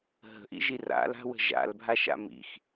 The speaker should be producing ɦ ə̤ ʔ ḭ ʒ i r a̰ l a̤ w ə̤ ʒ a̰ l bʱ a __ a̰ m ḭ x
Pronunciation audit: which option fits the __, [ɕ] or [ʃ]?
ʃ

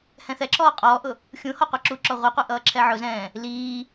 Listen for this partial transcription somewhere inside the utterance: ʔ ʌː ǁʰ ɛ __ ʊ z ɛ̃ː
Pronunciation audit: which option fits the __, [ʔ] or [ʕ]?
ʕ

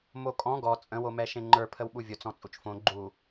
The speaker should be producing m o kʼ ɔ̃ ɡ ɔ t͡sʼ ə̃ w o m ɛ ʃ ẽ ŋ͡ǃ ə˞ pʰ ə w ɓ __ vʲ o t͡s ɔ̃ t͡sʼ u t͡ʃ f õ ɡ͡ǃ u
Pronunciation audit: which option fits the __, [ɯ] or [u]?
u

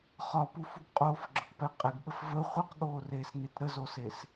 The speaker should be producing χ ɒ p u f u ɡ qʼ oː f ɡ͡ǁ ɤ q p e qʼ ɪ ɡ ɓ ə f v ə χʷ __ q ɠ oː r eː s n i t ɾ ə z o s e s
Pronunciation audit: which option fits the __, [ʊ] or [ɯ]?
ɯ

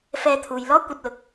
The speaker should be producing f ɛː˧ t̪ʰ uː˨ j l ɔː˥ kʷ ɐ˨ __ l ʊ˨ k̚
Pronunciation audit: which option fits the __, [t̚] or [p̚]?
t̚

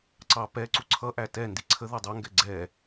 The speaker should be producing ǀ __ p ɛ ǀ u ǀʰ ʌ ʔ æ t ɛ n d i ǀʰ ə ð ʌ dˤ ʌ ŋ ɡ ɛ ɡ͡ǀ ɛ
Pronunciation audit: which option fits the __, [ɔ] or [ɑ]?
ɑ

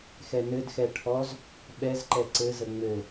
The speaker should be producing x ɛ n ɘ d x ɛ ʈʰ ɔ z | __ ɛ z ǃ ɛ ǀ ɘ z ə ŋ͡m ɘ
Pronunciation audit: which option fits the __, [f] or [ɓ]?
ɓ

